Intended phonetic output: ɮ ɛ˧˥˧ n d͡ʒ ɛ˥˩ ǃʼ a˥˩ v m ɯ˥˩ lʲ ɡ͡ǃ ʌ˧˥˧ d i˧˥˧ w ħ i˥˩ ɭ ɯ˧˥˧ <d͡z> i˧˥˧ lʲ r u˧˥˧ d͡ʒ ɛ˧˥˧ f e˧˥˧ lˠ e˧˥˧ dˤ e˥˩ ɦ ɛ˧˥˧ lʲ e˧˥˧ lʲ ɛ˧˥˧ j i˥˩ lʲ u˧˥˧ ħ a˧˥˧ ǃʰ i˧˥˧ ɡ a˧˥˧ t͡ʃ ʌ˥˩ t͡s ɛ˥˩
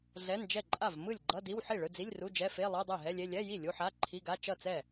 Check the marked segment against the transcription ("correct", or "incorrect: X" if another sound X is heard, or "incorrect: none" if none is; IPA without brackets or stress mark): correct